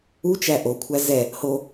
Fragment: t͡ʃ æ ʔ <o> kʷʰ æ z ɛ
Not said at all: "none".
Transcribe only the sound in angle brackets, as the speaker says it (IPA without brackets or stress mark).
o